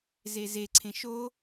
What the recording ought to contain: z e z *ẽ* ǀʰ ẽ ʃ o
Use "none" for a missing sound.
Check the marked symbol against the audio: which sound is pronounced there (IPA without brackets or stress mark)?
e